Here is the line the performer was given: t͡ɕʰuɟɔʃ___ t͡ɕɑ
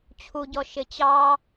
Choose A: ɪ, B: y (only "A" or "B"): A